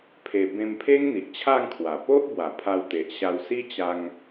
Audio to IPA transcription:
pʰe˧ bẽ˧mpʰe˦ŋ n̪i˨ʔt͡ɕʰa˥˧ŋkʰwa˨˩ po˦ʔbwa˨˩ pʰa˧wt̪e˨ʔɕa˧w si˦ t͡ɕa˦ŋ

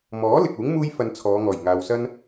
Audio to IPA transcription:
mɔː˨˥ lɪ˨k̚uː˨˥ŋ muː˥jfɐ˧n t͡sʰɔː˨˧ŋɔː˨˩j ŋaː˨wsɐ˥n

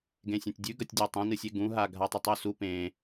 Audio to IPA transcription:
ɡẽsʲɐ̃tʲdʲʉɡɐtʲ dʲatˤɐ̃nɨsʲe ɡũɦa ɡʱatˤɵtˤusu pẽ

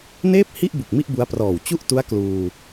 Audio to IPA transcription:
neː˥˩p̚hi˥˩ʔ bu˨˩k̚mi˥˩ʔ bu˦˥a̯prɔː˨˩w t͡ɕu˥˩ʔtu˦˥a̯ kluː˧

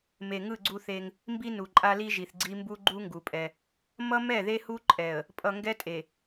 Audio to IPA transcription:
me˨ ŋɯ˦˨ɡ͡ǀu˦θe˦ŋ | mbi˦nu˨ǃʼa˦ li˦ʒi˨θɡ͡ǀi˦mbu˦ ɡ͡ǃu˦ ŋɡu˨pʼɛ˦ | mʌ˦mɛ˦˨ðe˦ hu˦ǃʼɛ˨ə̯ | pʼʌ˨ŋɡɛ˦tʼe˨

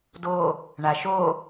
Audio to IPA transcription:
do | ɳaʃo

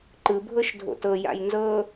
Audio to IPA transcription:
ǃɯ bʱɤʃdʱo̰tɤ ja̰jnzɤ

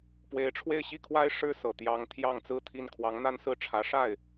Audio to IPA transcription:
pwe˧˥ɪ̯ʈ͡ʂʰwe˥˧ɪ̯ɕi˥˩kʰwa˥ɪ̯ ʂɻ̩˥˩sɤ˨˩ t̪jɑ˧˥ŋ t̪ʰjɑ˥˧ŋt͡sɹ̩˥˧t̪ʰi˥˩n kʰwɑ˧˥ŋn̪a˥˧nsɹ̩˥˩ʈ͡ʂʰä˧˥ ʂa˥˩ɪ̯

